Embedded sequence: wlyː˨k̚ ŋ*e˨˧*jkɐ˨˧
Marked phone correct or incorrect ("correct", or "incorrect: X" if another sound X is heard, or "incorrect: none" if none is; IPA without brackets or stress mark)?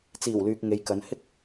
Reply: correct